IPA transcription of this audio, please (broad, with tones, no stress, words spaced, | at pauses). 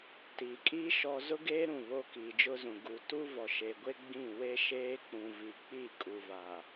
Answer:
tiː˨kʼiː˦ ʃɔ˦ zʊ˦ɡeː˦ ɾũ˦˨βo˦ kiː˨d͡ʒʊ˦zũ˨ ɡu˨ tu˦vɔ˨ʃe˨ɡʷe˦ ɡ͡bĩ˦˨ we˦ ʃeː˦k͡pũ˨ vi˨k͡pi˦˨kʼu˨ va˨